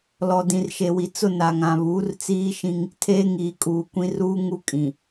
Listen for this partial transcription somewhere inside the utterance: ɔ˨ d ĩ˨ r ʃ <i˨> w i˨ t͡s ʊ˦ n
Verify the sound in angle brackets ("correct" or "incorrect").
incorrect